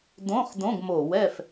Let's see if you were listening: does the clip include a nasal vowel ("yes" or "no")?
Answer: yes